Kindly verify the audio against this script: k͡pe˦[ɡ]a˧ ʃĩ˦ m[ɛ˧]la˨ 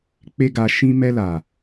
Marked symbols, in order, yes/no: yes, yes

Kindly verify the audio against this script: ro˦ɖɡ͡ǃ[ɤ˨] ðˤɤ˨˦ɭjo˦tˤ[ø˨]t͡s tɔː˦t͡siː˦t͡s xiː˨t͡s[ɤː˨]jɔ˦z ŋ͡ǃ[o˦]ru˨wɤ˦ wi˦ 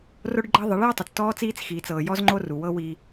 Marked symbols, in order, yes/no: no, no, yes, yes

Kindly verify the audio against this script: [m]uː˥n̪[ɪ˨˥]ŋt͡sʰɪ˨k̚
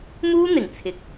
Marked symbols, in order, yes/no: yes, no

